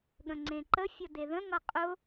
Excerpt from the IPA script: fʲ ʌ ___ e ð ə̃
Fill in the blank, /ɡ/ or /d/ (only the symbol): d